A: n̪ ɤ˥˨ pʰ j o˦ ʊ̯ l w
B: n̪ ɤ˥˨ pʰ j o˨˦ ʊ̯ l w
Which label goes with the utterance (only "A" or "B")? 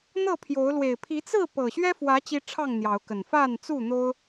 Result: B